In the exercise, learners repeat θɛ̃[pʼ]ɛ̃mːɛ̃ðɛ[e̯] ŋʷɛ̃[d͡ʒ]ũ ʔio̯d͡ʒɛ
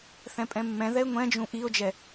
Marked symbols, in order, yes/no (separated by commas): yes, yes, yes